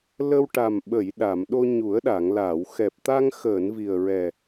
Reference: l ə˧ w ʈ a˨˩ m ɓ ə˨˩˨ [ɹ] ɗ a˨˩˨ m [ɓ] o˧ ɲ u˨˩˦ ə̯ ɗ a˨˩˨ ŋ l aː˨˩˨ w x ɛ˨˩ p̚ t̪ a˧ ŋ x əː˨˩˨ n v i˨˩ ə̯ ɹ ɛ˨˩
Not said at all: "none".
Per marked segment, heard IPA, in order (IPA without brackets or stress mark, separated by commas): j, ɗ